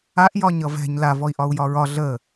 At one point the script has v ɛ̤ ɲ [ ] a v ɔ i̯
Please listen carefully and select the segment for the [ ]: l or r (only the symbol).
l